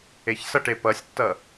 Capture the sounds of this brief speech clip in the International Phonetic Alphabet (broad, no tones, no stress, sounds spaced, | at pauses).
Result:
e ç s ʌ ʈ e p ʌ sʲ tː ʌ